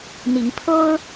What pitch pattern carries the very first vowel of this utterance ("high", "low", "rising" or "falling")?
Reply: rising